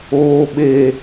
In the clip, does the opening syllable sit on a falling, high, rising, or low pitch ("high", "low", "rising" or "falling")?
low